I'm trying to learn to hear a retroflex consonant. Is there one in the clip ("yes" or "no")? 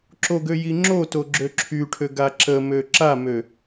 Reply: yes